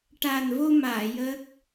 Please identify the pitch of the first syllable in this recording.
low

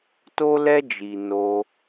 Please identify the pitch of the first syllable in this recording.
high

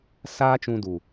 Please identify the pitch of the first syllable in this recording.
high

